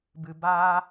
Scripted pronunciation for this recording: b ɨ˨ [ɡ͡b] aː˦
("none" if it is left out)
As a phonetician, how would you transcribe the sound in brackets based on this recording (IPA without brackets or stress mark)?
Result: b